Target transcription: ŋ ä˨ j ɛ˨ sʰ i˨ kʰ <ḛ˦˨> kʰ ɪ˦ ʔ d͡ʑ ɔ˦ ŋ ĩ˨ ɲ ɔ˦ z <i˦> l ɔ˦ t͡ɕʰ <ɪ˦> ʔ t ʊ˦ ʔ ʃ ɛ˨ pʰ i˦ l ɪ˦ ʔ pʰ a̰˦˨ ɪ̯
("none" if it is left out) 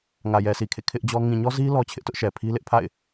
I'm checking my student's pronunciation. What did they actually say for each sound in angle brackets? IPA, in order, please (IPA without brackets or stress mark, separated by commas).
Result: ḛ˦˨, i˦, ɪ˦